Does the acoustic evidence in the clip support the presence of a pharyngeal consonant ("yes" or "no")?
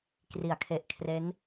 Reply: no